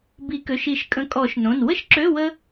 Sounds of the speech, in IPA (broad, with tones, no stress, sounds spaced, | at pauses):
b i˨˩˦ k ø˩˧˩ ʃ i˨˩˦ ʃ kʼ ə̃˨˥ kʼ ɔ˨˩˦ ʃ n õ˩˧˩ n w ə˥ ʃ ǁ ø˧˥˧ w ə˥